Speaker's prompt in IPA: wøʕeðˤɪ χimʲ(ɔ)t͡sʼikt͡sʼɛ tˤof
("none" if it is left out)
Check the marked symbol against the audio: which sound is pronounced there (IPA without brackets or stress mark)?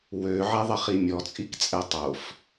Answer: ɔ